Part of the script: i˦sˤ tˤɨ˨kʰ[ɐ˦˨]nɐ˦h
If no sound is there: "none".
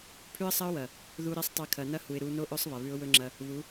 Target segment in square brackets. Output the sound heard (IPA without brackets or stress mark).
ɐ˨